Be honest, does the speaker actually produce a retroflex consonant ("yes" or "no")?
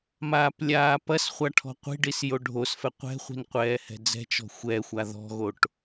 yes